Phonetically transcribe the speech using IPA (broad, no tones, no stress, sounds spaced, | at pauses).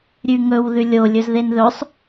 ɾʲ ʉ ŋ ɵ w ð ʉ lʲ o lʲ ɵ z ð e n ð ɵ sˤ